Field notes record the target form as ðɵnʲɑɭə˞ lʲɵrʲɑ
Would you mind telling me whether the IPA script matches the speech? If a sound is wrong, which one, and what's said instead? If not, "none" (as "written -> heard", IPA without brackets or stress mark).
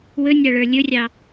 ð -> w